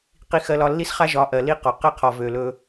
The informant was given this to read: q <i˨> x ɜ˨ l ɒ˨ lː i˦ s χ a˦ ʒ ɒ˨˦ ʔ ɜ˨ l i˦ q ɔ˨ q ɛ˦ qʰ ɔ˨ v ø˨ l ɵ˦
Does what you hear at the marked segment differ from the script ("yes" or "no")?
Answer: no